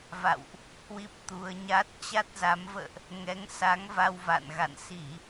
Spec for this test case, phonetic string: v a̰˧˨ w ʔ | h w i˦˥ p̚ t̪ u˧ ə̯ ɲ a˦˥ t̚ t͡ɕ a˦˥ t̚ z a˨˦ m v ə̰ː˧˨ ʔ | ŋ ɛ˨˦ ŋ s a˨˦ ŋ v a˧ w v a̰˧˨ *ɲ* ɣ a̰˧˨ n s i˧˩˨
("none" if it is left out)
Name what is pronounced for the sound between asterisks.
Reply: n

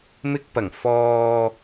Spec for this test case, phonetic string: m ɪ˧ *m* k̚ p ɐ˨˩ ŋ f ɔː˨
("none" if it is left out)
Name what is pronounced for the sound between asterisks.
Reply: none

